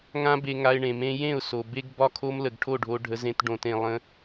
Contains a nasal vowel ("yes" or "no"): yes